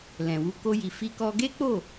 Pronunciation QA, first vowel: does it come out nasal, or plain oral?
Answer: nasal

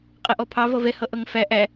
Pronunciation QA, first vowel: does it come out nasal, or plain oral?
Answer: oral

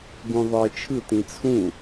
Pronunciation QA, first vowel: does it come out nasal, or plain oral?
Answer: nasal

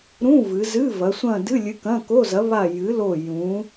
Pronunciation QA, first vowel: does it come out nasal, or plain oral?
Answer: nasal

